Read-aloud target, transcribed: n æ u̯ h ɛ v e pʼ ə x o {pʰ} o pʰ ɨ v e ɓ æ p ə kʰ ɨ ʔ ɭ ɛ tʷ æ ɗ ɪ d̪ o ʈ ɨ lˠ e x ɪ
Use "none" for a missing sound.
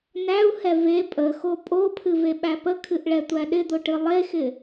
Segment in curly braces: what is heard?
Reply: pʼ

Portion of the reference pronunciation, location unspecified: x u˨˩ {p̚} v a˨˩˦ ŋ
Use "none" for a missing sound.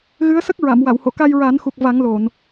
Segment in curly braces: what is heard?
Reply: k̚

